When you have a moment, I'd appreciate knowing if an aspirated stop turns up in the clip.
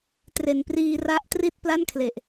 yes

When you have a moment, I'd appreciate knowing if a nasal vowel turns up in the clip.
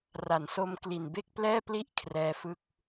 no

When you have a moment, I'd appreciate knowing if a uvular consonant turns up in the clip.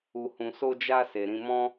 no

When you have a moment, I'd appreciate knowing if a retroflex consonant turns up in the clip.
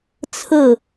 no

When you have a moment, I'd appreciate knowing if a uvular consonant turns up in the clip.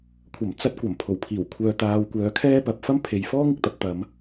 no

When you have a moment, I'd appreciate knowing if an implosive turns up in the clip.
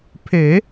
no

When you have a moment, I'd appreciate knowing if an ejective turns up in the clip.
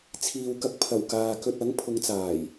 no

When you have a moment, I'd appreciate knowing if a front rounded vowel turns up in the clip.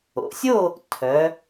yes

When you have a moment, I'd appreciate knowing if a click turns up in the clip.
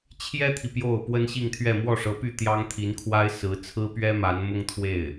no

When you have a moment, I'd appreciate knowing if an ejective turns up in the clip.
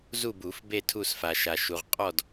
yes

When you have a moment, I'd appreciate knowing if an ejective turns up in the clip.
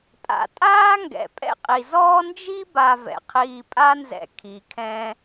yes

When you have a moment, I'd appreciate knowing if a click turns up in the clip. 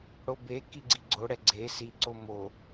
yes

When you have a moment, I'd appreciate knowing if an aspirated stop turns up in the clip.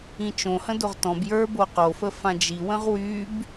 no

